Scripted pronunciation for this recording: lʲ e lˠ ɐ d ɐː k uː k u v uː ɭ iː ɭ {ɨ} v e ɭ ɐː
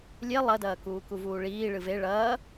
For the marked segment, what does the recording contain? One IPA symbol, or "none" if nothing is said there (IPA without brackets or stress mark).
ɨ